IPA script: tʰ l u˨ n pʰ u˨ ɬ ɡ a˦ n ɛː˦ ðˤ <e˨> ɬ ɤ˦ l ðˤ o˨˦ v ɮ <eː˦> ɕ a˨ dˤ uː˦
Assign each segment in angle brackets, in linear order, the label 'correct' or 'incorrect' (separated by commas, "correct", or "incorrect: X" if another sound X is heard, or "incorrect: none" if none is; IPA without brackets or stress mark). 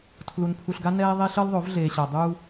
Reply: incorrect: e˦, incorrect: eː˨